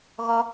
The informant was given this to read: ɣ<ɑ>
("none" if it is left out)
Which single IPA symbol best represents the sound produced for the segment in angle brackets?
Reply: ɔ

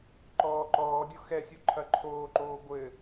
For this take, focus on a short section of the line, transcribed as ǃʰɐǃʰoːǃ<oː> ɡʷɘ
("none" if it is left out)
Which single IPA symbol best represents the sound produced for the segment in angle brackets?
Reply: oː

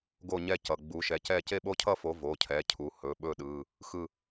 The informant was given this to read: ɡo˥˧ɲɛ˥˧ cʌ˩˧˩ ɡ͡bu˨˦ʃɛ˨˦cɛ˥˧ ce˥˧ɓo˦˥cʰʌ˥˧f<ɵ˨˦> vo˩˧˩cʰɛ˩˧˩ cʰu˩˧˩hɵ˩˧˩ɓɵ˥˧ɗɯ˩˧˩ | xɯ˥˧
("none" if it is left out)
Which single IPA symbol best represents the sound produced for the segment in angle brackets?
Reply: o˨˦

